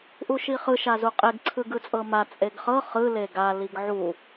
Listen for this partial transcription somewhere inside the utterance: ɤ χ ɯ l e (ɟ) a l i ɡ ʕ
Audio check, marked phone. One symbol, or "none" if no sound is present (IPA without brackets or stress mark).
ɡ